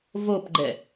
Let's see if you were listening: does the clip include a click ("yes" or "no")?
yes